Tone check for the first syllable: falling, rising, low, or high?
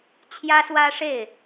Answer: high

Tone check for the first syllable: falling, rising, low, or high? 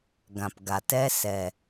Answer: low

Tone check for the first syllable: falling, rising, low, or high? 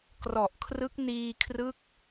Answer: low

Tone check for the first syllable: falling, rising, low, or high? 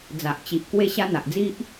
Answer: low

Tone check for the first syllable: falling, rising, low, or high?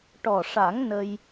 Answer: low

